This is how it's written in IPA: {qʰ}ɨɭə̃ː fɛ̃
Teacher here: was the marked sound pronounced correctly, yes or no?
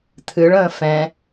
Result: no